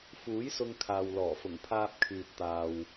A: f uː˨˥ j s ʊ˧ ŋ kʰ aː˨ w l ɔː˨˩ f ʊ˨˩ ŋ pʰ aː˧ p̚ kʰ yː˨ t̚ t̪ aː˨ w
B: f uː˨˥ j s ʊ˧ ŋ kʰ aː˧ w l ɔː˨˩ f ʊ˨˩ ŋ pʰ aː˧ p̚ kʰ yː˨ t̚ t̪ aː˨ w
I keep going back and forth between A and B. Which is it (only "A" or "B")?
A